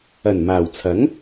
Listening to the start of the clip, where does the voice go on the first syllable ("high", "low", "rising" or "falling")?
low